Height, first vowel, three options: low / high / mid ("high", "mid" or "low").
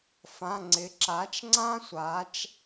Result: low